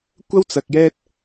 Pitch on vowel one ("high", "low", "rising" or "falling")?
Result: high